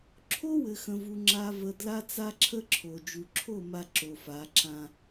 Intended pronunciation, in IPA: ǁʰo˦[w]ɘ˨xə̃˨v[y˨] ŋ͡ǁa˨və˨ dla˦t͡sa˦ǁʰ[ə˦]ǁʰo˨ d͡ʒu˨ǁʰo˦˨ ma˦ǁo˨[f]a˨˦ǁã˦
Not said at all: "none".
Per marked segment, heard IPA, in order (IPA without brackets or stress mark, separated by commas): w, u˨, ə˦, f